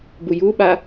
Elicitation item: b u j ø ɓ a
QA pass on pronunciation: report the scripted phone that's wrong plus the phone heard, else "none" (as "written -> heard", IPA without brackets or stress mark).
ø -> u